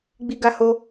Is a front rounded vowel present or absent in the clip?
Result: absent